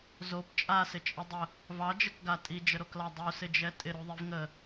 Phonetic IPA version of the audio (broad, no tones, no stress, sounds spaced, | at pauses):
z o p t͡ʃʼ a s ɪ t͡ʃʼ ə dˤ ə | v ɑ d͡ʒ ə k ɡ a tʼ i d͡ʒ ə ɾ o k l ɑ dˤ u s ɪ d͡ʒ ɛ tʼ ɪ ɾ u ðˤ i v ŋ ə